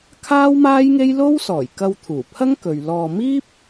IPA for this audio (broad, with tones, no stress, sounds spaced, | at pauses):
kʰ aː˥ w m aː˥ j ŋ e˥ j l o˥ w s ɔː˨˩ j k ɐ˧ w t̪ʰ uː˨˩ pʰ ɐ˥ ŋ k ɵ˨ ɥ l ɔː˧ m iː˥ p̚